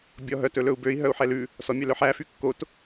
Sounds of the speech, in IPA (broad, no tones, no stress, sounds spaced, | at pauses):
bʲ ɔ ɦ œ t ɵ l ɵ u̯ b ø i̯ ɦ œ u̯ ħ ɛ l ʉ | s ɔ mʲ œ l œ ħ æ f y kː o t